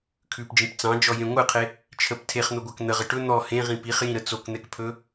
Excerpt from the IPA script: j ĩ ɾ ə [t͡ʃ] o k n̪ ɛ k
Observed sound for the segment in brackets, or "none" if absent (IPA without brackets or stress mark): t͡s